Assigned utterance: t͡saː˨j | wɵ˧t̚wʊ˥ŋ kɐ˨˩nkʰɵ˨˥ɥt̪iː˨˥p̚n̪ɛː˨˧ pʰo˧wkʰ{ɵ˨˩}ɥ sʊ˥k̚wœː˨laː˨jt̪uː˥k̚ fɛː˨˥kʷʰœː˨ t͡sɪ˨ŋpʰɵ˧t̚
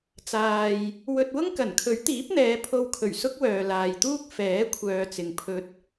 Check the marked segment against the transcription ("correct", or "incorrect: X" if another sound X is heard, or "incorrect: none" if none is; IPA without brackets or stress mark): correct